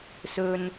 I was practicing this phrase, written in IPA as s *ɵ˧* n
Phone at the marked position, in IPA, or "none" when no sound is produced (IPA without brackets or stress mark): ɵ˧